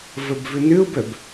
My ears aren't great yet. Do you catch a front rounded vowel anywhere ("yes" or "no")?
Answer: yes